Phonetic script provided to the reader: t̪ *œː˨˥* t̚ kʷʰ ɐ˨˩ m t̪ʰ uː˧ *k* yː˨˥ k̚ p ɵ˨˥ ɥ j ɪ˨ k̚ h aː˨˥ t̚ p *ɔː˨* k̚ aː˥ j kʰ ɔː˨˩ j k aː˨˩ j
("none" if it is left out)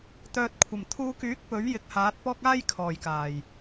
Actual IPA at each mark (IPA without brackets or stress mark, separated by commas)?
œː˨, k, ɔː˥